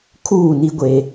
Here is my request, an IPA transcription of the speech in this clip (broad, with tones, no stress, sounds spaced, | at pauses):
kʰ uː˦˨ n i˦ ɡʷ e˦